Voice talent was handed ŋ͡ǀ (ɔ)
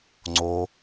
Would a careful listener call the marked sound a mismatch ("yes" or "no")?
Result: yes